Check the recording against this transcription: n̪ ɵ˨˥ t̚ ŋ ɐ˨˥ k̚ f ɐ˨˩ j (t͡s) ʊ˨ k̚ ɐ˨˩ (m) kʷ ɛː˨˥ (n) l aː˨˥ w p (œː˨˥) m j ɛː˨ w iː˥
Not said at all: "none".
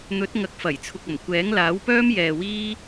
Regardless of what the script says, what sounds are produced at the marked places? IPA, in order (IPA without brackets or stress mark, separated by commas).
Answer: t͡sʰ, m, ŋ, œː˥